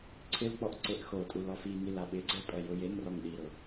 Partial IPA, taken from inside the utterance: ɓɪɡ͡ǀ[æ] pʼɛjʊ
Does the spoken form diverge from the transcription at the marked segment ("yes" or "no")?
yes